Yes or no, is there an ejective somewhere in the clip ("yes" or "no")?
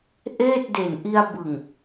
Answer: no